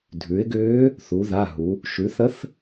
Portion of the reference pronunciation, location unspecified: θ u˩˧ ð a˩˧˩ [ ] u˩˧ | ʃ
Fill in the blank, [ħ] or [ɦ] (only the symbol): ɦ